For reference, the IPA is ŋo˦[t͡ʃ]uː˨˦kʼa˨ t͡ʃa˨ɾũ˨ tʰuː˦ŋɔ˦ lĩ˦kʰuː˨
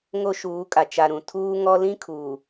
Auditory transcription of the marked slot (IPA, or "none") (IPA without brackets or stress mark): ʃ